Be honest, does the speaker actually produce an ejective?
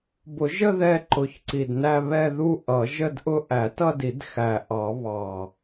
no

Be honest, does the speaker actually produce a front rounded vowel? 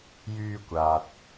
yes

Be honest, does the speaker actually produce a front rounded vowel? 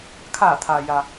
no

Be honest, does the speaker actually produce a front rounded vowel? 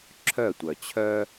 yes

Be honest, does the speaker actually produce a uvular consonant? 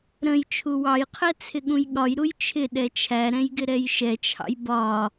yes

